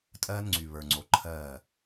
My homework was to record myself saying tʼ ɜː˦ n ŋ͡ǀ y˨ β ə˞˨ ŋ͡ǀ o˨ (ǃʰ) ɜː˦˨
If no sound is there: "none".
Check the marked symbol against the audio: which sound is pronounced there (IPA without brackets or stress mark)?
ǃʰ